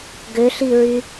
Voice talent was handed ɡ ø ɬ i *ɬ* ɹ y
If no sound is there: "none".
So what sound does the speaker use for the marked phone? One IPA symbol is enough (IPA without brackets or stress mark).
none